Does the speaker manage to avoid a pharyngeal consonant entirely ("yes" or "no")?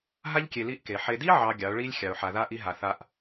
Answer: no